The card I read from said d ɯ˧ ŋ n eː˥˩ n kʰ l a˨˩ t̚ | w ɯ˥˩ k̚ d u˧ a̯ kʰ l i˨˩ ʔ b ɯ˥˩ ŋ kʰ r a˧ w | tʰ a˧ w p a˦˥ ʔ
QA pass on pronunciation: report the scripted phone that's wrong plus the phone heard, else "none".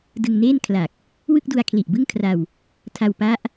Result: t̚ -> k̚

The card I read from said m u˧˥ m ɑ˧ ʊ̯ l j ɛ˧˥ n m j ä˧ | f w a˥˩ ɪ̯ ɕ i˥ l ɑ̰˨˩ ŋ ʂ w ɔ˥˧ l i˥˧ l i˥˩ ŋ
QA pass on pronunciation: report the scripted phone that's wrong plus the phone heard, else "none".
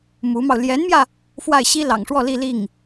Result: none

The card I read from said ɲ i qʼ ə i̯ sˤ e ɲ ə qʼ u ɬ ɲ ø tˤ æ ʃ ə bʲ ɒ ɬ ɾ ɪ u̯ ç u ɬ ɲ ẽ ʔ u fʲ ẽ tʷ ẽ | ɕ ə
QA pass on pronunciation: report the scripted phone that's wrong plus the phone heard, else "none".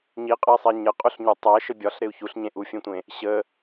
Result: none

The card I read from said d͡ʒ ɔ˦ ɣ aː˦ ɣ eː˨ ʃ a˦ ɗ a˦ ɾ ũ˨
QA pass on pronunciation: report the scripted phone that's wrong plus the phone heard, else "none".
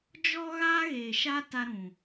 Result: ɗ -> t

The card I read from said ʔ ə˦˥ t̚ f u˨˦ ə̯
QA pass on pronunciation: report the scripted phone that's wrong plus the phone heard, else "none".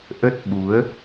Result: f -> ɓ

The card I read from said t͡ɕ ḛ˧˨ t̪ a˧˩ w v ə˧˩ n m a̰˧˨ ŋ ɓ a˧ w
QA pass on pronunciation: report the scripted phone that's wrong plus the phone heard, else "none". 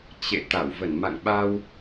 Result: none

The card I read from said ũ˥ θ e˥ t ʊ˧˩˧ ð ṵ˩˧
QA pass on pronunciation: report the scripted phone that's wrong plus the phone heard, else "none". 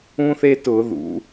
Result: none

